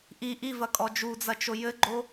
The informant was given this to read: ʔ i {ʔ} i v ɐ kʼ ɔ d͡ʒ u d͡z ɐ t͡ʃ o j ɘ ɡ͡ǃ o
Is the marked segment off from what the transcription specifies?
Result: no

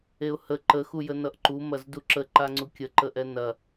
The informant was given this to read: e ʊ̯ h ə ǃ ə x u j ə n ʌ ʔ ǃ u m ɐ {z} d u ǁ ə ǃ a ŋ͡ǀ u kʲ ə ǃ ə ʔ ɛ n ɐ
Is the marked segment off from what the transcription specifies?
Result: no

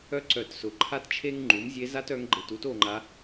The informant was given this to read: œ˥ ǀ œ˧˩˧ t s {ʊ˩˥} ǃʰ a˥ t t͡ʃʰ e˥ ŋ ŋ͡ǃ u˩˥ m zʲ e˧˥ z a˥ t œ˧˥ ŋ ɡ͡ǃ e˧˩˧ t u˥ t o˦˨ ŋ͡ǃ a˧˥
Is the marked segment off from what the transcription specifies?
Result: no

